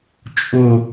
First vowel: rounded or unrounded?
rounded